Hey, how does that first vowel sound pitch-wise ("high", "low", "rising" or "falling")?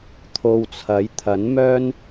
low